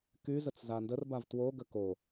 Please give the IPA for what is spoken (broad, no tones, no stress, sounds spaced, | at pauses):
k y z ə t͡s z a n d ə r b a v t w o ɡ ə k o